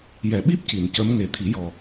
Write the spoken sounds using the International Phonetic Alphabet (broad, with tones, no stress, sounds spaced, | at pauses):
j ɛ˨˩˨ ɓ i˦˥ p̚ c i˨˩ n c ə˧˥ m ŋ e˨˩ t̪ʰ i˨˩˦ j ɔ˨˩